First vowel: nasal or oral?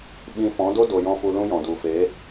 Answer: nasal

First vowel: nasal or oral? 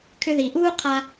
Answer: oral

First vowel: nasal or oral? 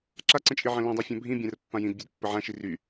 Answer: oral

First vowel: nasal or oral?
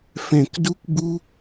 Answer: nasal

